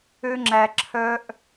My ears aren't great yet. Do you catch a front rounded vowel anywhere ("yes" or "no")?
yes